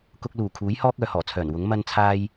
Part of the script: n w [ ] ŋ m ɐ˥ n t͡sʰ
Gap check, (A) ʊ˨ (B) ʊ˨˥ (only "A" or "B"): B